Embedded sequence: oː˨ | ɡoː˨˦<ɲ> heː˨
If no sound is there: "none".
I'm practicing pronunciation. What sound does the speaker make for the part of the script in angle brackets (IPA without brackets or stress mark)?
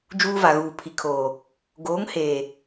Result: ŋ